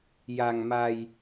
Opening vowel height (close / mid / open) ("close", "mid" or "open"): open